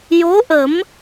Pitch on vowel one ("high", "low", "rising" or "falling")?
rising